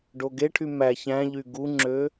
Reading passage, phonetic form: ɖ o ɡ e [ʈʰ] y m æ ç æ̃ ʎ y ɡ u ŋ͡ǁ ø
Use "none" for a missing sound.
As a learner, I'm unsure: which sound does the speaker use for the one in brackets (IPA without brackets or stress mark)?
ʈʰ